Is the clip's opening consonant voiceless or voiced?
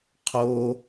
voiceless